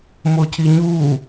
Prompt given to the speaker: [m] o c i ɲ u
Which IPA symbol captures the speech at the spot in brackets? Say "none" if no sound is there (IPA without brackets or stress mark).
m